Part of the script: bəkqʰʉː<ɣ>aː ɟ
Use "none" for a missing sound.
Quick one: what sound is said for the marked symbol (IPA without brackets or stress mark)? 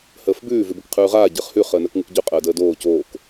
ʁ